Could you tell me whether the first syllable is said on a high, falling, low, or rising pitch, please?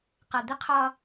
low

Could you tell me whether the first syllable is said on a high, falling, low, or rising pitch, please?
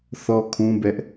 high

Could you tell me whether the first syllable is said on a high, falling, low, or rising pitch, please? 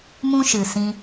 high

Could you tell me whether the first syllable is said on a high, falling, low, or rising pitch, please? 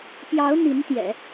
rising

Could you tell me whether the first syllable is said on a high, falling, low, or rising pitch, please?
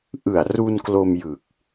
low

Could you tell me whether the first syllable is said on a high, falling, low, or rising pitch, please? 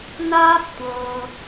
high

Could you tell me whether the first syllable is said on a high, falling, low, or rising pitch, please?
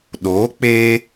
rising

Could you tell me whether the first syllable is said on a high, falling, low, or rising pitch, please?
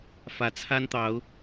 rising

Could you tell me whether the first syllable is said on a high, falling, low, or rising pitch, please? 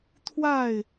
falling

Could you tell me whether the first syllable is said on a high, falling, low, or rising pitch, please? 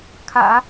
low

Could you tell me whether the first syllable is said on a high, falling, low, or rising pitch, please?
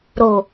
low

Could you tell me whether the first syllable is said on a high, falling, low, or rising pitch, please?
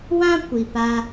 high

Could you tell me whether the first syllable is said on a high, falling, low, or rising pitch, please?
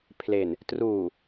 low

